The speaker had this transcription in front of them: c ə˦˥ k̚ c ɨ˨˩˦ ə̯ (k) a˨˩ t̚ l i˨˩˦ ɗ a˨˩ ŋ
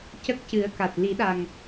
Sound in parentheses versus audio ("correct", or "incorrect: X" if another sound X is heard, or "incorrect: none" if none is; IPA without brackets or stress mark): correct